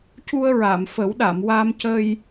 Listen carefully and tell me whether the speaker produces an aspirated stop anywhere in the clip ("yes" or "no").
no